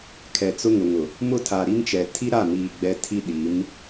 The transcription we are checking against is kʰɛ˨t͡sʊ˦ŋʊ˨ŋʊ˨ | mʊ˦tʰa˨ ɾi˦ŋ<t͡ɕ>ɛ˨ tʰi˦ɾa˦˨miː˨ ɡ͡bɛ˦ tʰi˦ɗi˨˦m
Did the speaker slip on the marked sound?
yes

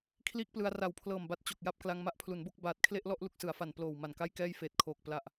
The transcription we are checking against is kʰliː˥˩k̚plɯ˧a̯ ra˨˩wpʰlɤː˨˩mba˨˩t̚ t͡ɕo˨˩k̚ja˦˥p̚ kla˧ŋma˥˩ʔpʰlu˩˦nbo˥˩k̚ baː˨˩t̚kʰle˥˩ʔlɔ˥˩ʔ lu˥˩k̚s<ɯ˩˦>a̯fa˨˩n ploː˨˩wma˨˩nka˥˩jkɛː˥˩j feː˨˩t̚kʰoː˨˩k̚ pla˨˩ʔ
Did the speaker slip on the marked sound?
no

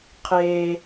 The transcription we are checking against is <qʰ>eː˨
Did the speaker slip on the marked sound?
no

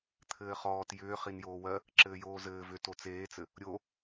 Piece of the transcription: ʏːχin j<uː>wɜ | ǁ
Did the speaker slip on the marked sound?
yes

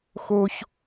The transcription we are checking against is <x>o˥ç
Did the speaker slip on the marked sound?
no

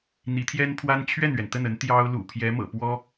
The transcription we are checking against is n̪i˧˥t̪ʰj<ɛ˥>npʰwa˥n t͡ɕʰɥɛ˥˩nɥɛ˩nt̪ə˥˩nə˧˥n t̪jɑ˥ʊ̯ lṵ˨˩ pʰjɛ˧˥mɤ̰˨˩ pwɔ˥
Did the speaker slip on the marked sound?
no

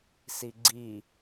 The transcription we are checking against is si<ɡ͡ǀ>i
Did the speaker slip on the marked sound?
no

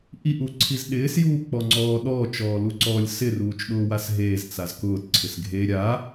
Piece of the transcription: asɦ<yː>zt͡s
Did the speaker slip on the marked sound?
yes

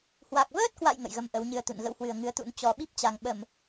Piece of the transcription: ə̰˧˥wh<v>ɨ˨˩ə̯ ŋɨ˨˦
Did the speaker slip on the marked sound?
yes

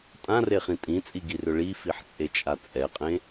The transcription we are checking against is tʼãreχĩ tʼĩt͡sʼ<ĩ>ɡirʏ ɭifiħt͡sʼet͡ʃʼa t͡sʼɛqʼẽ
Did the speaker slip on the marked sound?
yes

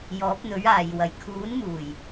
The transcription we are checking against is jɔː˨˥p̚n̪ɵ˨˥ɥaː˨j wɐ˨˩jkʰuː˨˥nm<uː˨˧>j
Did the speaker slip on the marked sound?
yes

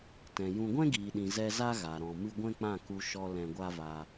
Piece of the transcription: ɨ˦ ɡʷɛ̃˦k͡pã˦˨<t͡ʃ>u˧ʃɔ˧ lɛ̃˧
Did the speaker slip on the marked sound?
yes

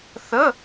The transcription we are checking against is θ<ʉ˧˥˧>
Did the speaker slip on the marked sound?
yes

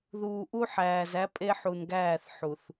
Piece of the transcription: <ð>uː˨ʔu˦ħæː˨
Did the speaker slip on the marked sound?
no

